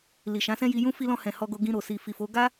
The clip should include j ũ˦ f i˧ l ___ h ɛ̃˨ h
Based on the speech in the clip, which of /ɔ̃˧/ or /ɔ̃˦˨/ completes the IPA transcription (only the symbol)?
ɔ̃˧